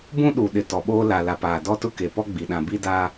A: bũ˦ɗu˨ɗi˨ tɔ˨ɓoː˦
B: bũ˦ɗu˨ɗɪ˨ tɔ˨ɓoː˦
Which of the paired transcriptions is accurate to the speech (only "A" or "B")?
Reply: B